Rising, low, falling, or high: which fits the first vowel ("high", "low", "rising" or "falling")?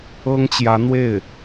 high